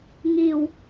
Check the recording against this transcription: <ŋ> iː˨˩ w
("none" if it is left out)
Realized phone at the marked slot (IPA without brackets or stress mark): ŋ